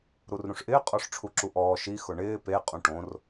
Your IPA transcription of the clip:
ɾ u r ɾ ũ ʂ ʔ ɪː qʼ ɔ ʂ ʈ͡ʂʰ u ǁ u ʔ ɔː ʃ i x ʊ ɳ ɪː p e qʼ ũ ʈ õ r

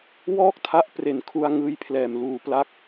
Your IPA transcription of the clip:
w ɔː˥˩ k̚ tʰ a˦˥ ʔ p r e˨˩ n kʰ u˧ a̯ ŋ ɯː˦˥ j pʰ l ɛː˨˩ m l uː˨˩ p l a˦˥ k̚

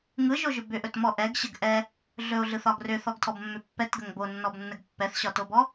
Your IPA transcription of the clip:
ŋ ɯ ʒ o ʒ ʏ b ʏ ʔ ɵ t m ɔ ʔ ɛ ɡ ɕ ə ɡ ʔ ɛ | ɮ ɵ o̯ ɮ ɯ θ ɒ ɡ r ʏ θ ɔ ɡ tʰ ɔ b mː ʏ pː ɛ t ɡ ə ŋ b o nː ɔ b nː ə ɡ pː ɛ θ ɕ ɒ t o b ɔ

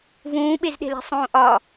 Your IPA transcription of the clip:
v ũː ɓ e z ɗ e̤ l e̤ sˤ õː ʔ ɒ

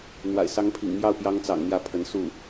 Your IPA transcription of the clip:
n̪ w a̰˨˩ ɪ̯ s ɑ˧˥ ŋ pʰ ḭ˨˩ ŋ m j ɑ˥˩ ʊ̯ p j ɑ˧˥ ŋ t͡s ɑ̰˨˩ ŋ n̪ j ä˥˩ pʰ ə˧˥ n s u˥˩

